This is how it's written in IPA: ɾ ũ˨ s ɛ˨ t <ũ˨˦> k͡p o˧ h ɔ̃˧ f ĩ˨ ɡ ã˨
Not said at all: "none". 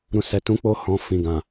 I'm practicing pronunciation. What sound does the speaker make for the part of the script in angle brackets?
ũ˨˦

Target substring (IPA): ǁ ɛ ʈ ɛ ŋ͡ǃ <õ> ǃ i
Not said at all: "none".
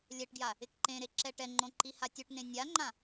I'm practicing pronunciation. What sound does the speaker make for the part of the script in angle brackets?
õ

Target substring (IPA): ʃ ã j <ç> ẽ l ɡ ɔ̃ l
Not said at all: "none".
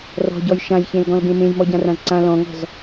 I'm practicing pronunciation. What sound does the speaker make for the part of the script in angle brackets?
ç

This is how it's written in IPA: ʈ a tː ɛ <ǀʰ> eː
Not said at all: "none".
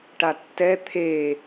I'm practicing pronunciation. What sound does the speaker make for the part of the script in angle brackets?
t̪ʰ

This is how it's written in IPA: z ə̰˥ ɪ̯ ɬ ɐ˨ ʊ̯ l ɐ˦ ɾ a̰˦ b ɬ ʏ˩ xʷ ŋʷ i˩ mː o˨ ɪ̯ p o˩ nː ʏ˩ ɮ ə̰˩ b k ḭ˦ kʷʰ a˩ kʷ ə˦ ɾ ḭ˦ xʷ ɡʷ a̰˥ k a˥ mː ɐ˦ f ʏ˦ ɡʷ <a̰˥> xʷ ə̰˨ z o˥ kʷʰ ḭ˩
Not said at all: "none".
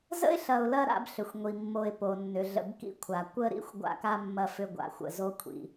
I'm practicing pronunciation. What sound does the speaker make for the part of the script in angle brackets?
a̰˨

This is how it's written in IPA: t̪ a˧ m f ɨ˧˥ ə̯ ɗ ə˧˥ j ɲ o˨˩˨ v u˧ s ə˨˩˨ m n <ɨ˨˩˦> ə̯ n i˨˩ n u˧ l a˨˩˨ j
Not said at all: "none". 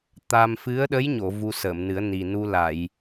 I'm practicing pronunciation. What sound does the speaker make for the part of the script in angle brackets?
ɨ˨˩˦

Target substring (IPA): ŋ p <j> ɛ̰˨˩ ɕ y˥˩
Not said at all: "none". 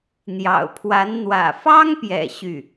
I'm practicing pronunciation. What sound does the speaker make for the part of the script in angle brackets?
j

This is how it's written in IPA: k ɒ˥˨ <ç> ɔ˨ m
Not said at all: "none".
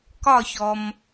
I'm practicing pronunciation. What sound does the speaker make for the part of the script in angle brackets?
ç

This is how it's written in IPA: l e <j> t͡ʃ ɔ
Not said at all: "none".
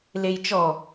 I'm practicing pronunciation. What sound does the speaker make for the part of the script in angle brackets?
j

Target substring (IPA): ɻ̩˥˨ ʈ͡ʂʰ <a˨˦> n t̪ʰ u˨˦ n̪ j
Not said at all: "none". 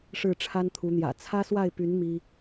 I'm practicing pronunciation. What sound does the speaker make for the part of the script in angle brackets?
a˦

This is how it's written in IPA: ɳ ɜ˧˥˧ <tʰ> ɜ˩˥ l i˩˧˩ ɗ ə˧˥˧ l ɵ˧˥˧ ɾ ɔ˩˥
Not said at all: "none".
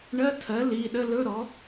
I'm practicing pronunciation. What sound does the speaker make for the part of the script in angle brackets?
tʰ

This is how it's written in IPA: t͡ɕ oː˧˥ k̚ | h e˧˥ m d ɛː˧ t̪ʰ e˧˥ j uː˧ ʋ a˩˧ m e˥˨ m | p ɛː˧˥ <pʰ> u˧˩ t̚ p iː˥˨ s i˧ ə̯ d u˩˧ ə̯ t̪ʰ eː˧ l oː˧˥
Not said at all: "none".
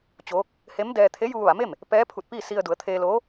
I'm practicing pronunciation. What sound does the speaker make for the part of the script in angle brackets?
pʰ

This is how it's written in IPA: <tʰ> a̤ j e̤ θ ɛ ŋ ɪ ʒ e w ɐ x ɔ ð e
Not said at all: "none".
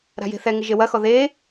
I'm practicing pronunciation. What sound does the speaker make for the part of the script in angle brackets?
ɾ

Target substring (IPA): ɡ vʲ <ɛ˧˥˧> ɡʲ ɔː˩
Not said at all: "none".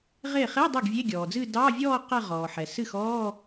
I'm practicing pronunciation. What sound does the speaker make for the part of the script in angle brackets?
e˧˥˧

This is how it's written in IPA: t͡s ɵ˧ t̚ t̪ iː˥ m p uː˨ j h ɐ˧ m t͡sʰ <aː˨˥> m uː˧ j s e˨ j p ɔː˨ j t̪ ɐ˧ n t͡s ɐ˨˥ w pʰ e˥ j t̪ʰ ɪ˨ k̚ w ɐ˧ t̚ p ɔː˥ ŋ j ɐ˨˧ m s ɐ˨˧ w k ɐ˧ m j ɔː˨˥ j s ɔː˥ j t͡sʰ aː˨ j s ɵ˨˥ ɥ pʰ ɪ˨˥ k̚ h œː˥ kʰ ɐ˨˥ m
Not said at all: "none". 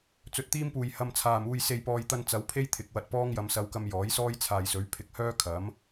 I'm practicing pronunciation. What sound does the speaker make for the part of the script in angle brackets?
aː˨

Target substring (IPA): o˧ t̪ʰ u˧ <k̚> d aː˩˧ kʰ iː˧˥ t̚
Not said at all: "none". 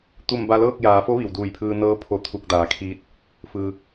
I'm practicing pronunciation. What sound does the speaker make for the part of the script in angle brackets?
k̚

